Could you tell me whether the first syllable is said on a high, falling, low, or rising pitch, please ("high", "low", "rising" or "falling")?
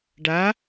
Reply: rising